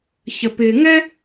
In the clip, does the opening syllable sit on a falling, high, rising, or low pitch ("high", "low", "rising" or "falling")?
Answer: low